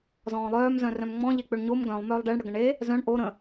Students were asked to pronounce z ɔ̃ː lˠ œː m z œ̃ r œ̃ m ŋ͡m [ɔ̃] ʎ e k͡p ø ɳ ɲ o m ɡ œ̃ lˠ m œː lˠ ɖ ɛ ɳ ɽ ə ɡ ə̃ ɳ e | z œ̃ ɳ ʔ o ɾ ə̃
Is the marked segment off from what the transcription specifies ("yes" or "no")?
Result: no